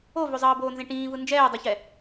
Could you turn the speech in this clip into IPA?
o v o zˤ ʌː b oː n z ẽ ʈ ĩː v ɯ n d͡ʒ ɛː dˤ u ç ɛ

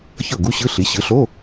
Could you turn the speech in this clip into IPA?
ç ɤ˥˩ ɡ u˧˥˧ ɕ ɯ˧˥˧ ɬ i˩˥ ɕ ɯ˩˥ ɬ o˧˥˧

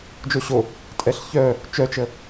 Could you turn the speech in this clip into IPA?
d͡ʒ o ɕ o | tʼ ɛ ɬ ç œ | t͡ʃ œ t͡ʃ ə

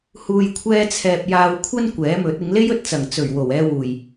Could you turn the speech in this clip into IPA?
h uː˨ j kʷʰ ɛː˧ t͡sʰ ɛː˨ p̚ j aː˨ w kʷʰ ɐ˧ n kʷ ɛː˨˥ m ɵ˨˥ t̚ ɪ˨˧ ŋ l e˥ j ɵ˧ t̚ t͡s ɐ˨˩ ŋ t͡s ɵ˨˩ ɥ w o˨˩ w ɛː˧ w uː˨˩ j

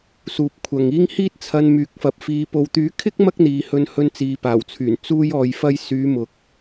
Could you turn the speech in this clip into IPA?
s uː˨ p̚ kʷʰ ɐ˨ ŋ iː˥ ŋ h iː˥ t̚ t͡sʰ ɐ˧ n m yː˨˥ k̚ f ɐ˨ p̚ f iː˨˧ p o˨ w t̪ yː˨˥ kʰ ɪ˥ k̚ m ɐ˥ k̚ n̪ iː˨ h ɵ˧ n h ɵ˧ n t͡s iː˨ p aː˨˩ w t͡sʰ yː˨˩ n t͡s uː˧ j ɔː˨ j f ɐ˧ j s yː˨˧ m ʊ˨ k̚

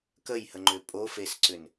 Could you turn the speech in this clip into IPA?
k ə j h ə ŋ͡ǃ ʏ pʼ o f e s ǀ ʏ n

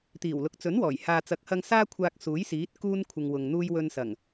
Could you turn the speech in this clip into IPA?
t̪ iː˨˩ w l ʊ˨ k̚ t͡s ɵ˨˥ n w ɔː˨˩ j h aː˨ t͡s ɐ˨˥ k̚ h ɐ˧ ŋ s aː˥ kʷʰ aː˧ k̚ s uː˨˥ j s iː˨˥ t̚ k uː˥ n kʷʰ ɪ˨ ŋ w ʊ˨ ŋ n̪ uː˥ j w ɵ˧ n s ɐ˨˩ ŋ

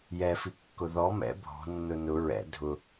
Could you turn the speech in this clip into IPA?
j ɛ f i kː ʊ ð ɔ m ɛ̰ bʱ ɔ̤ nː ʊ n ʊ ɹ ɛ̰ dʱ ʊ

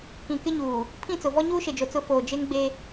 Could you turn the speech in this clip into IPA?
k ĩ˨ k ɪ˦ ɲ uː˨ | pʰ ĩ˦˨ t͡s ʊ˨ v ɔ˦ ɲ uː˦ ʃ e˨ d͡ʒ o˨ t͡s ʊ˦ f oː˨ d͡ʒ e˦ ŋ ɡ͡b e˦

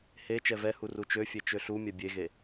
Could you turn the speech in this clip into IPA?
h e t͡ʃ ɛ v ɛ h u r u t͡ʃ ø fʲ e t͡ʃ ø ɬ u mʲ ɛ bʲ e ɣ e

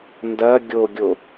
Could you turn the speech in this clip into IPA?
n d ɐ ɡʲ o ɡʲ o

